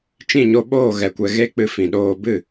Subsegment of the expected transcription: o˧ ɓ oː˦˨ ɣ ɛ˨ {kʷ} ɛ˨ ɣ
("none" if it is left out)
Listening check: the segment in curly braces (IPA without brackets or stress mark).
kʷ